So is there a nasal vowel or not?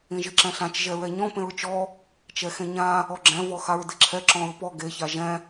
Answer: yes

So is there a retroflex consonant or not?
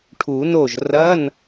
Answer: yes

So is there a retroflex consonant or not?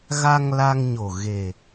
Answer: no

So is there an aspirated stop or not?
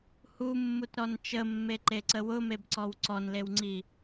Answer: no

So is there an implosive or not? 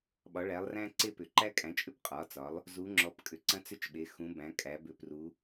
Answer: yes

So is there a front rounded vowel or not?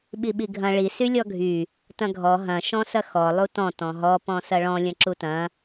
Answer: yes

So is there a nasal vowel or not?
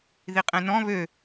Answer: yes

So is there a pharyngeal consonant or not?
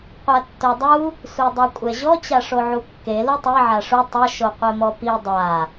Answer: yes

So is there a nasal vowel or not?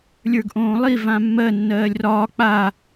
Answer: yes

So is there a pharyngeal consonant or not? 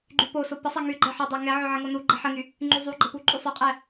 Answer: yes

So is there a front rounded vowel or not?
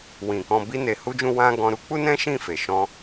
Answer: no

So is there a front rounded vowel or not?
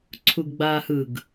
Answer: no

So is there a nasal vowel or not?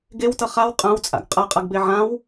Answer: yes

